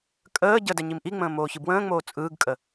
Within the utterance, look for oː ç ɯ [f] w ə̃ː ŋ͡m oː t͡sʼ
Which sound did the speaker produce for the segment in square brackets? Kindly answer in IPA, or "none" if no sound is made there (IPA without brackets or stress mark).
b